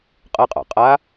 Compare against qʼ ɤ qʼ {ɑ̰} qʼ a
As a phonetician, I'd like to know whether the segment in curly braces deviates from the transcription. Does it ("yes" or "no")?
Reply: no